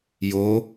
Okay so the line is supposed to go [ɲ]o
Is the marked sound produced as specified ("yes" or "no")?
no